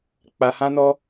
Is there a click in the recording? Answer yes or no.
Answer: no